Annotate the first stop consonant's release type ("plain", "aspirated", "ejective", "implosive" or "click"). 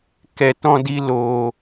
plain